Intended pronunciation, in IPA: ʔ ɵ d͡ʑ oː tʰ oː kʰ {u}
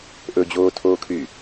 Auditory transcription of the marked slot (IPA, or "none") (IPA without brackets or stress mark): y